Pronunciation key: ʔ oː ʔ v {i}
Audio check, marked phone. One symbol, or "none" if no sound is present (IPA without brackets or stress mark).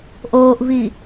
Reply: i